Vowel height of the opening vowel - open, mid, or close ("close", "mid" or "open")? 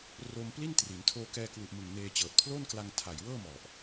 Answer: mid